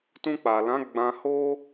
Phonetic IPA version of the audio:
t ũ˧ k͡p a˨ l ã˨˦ ɡ͡b ã˧ h o˦

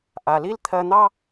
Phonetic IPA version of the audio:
ʔ a˩ l i˥ l t̪ʰ ɜ˧ n̪ ɑ˥

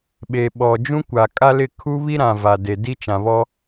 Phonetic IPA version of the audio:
ɓ e˨ ɓ ɔ˨ d͡ʒ ũ˦ kʷ a˨ kʼ a˦ l ɪ˦˨ kʰ u˦ β i˦ ɾ ã˨ v a˨ d e˨ d i˦ t͡ʃ ã˨ β ɔ˦

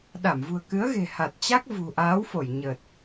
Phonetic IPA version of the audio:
ɗ a˧˩ m v ṳ˨˩ ə̯ k ɨ˨˦ ə̯ ɣ e̤˨˩ h a˨˩ t̚ t͡ɕ a˦˥ k̚ v ṳ˨˩ ʔ aː˨˦ w f o˧˩ j ɲ ə˨˩ t̚

